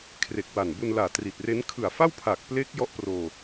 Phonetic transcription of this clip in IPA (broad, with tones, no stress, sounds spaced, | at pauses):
kʰ r e˨˩ k̚ w a˨˩ n b u˧ n l aː˨˩ t r i˨˩ t̚ r e˦˥ n kʰ ɯ˨˩ a̯ f a˥˩ w pʰ aː˨˩ k̚ p l e˦˥ k̚ j ɔ˦˥ ʔ p r oː˧